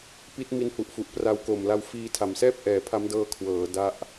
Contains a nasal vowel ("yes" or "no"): no